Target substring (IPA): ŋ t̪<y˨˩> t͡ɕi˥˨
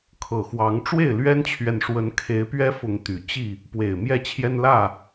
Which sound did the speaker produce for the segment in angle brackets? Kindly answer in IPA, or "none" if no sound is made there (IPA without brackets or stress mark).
y˨˩